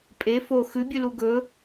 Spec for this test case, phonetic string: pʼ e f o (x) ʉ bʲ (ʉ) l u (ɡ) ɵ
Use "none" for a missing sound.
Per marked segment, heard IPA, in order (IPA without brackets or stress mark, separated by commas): x, ʉ, ɡ